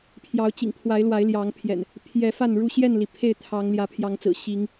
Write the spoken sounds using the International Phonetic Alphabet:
pʰ j ɑ˨˦ ʊ̯ t͡ɕ ḭ˨˩ ŋ pʰ w a˨˦ ɪ̯ l w a˨˦ ɪ̯ l j ɑ˨˦ ŋ pʰ j ɛ̰˨˩ n | pʰ j ɛ˨˦ f a˥˨ n ɻ u˥˨ ɕ j ɛ˥˨ n l i˩ pʰ e˥˨ ɪ̯ t̪ʰ ɑ˨˦ ŋ l j ä˨˦ pʰ j ɑ˨˦ ŋ t͡s ɹ̩˨˩ ɕ i˨˦ ŋ

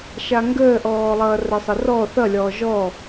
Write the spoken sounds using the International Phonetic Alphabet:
ʃ a ŋ ɡ əː ʔ ɔː lˠ ʌː r ə sˤ ə r ɔ θ ʌ lʲ ɔː ʒ ɔ

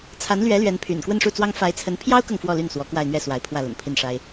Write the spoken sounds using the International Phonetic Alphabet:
t͡sʰ a˧˥ n l ɥ ɛ˧˥ l ɥ ɛ˧˥ n pʰ y̰˨˩ n k w ə˥˧ n ʂ u˥˩ t͡s w ɑ˥ ŋ f a˧˥ ɪ̯ t͡sʰ ə˧˥ n pʰ j ɑ˥ ʊ̯ k ɤ˨ ŋ f w ɔ˥˧ l y˥˩ n s w ɔ˧˥ k w a˥˧ ɪ̯ n̪ ɥ ɛ˥˩ s w a˧˥ ɪ̯ pʰ w ä˥˩ l ə̰˨˩ n pʰ i˥˩ n ʂ a˥ ɪ̯

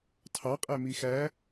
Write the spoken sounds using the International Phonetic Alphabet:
tʰ ɑ qʼ æ m i x æ

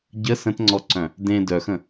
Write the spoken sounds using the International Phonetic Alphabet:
ɟ ə s ə̃ t ŋ͡ǀ ɔ ǀ œ̃ | d ẽ d œ x ə̃

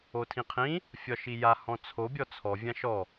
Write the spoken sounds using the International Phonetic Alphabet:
o tʰ ĩ qʰ ĩ | fʲ ɒ ʃ i j a h ɔ̃ t͡sʰ o bʲ ɔ t͡sʰ ɔ vʲ ã ʃ ɔ

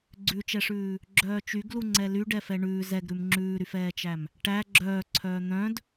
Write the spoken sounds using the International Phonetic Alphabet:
ɡ͡ǀ ʉ t͡ʃ ɛ ʂ ʉː | ɡ͡ǁ œː t͡ʃ y ɡ l u ŋ͡ǀ ɛ l y ɖ ɛ f ɛ ɳ ʉː z ɛ ɡ ɾ ʉ m ŋ͡ǁ ʉː ɾ y f ɛː t͡ʃ æ m | ʈ æ ɡ͡ǁ œː ǀʰ œː n̪ œ̃ d

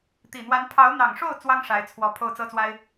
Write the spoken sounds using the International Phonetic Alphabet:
t̪ i˨˩ n̪ w a˧˥ n pʰ ɑ˧˥ ʊ̯ n̪ ɑ˨˩ ŋ ʂ o˥˩ ʊ̯ t͡s w ɑ˥ ŋ ʂ a˧˥ ɪ̯ t͡sʰ w ɔ˧˥ pʰ o˥˩ ʊ̯ t͡s ɤ˥ t͡s w a˥ ɪ̯

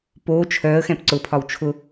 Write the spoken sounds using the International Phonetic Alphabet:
p oː t͡ʃʰ œː ə̯ x ɛ̃ p ǀ ʊ pʰ ɒ w t͡ʃʰ ʊ

